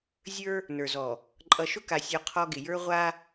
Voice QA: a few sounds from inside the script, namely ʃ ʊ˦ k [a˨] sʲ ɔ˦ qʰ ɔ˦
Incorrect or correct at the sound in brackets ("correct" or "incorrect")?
correct